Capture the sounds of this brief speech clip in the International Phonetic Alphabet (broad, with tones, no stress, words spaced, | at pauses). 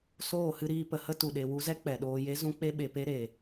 soː˦˨hɨ˧ɾiː˧ pə˨hə˧tu˨ɗe˨ wu˧zɛ˦ k͡pɛ˨ɗoː˧ je˦ zũ˦k͡pe˦ɓe˨pe˦ ɾe˨